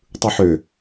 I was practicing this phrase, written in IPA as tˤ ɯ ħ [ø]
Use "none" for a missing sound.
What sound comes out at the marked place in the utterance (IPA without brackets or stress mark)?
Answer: ø